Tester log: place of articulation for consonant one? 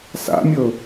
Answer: alveolar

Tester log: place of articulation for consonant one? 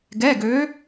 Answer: velar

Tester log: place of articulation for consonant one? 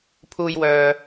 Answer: labial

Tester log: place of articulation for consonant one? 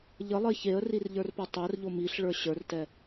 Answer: palatal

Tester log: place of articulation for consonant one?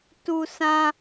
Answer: alveolar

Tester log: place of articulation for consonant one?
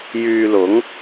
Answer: palatal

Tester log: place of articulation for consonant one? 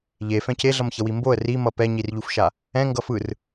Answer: palatal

